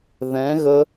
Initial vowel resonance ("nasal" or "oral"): nasal